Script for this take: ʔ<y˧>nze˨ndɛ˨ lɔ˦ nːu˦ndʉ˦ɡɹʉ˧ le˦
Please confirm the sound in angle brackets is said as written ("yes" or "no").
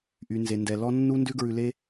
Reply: no